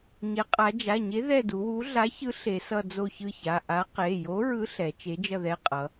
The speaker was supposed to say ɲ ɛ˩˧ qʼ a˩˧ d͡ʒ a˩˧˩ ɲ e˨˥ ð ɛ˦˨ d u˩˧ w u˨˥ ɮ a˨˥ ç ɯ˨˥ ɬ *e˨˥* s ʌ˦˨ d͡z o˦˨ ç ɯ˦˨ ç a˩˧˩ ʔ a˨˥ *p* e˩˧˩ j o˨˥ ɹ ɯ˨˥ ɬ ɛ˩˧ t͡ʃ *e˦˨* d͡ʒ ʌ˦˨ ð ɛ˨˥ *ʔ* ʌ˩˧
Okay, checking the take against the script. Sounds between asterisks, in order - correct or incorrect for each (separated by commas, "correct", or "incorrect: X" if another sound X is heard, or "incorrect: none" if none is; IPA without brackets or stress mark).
incorrect: e˩˧, incorrect: q, incorrect: e˨˥, incorrect: qʼ